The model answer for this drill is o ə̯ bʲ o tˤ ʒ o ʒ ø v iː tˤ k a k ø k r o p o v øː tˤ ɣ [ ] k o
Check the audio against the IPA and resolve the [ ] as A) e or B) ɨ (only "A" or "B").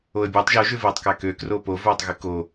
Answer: B